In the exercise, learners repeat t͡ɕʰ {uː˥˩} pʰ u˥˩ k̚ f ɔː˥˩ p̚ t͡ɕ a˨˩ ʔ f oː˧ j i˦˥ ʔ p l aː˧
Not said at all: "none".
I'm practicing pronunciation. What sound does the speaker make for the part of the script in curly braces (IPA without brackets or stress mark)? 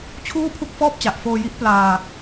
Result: uː˥˩